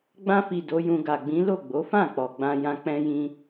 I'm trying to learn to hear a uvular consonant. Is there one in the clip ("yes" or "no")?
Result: no